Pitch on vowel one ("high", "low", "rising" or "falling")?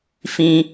high